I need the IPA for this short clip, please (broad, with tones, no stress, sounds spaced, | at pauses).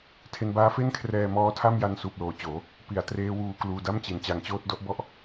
tʰ e˧ n b aː˦˥ f e˥˩ n kʰ r ɛː˧ m ɔː˦˥ tʰ a˥˩ m j a˧ n s uː˨˩ p̚ l oː˨˩ t͡ɕ oː˩˦ | p i˩˦ a̯ t r eː˦˥ w uː˧ k l uː˧ d a˥˩ m t͡ɕ i˨˩ n t͡ɕ a˧ ŋ t͡ɕ oː˥˩ t̚ d ɔ˥˩ ʔ b ɔ˥˩ ʔ